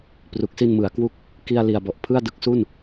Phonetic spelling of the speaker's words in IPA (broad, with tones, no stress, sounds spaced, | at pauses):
p r u˨˩ k̚ s i˧ n m ɯ˩˦ a̯ k w u˦˥ k̚ | k i˧ a̯ l i˨˩ a̯ b ɔ˨˩ ʔ pʰ ɯ˥˩ a̯ d ɯ˦˥ k̚ s u˥˩ n